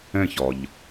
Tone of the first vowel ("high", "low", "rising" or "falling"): falling